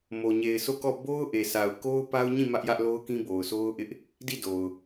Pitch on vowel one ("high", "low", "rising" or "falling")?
low